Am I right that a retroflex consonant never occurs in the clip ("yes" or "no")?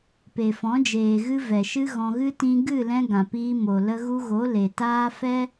yes